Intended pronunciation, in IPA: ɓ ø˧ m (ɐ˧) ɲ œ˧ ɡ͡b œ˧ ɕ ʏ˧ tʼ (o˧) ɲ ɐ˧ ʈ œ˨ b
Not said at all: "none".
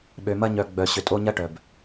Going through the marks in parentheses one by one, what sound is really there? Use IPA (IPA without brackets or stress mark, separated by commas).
ɐ˦, o˧